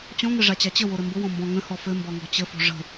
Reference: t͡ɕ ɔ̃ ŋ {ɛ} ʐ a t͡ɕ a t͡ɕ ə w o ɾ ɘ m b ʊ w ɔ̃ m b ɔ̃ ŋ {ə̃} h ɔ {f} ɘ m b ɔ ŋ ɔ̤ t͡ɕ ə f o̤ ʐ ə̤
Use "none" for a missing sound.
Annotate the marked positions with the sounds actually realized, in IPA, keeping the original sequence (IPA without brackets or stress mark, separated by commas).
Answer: ɘ, ə̃, f